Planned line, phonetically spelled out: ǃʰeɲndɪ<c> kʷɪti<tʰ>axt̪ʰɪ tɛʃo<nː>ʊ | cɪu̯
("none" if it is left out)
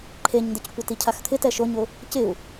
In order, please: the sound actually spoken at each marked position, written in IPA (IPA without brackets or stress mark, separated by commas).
c, cʰ, ɲ